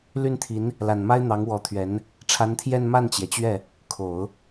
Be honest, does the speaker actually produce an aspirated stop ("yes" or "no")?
yes